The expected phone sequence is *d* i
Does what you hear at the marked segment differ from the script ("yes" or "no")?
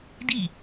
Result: no